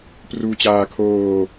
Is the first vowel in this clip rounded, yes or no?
yes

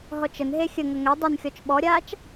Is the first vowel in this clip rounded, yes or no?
yes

